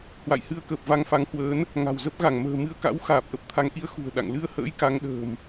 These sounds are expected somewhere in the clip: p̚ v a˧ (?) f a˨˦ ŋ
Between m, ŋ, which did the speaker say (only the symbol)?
ŋ